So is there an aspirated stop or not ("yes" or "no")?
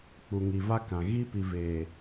no